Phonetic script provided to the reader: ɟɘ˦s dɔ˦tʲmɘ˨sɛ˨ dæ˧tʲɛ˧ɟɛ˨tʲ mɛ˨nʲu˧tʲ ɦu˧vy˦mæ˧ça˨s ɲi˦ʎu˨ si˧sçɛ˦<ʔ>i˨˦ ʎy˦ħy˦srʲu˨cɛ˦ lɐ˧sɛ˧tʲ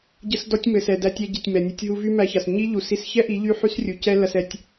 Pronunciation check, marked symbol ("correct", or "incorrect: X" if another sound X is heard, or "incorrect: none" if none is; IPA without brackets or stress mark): correct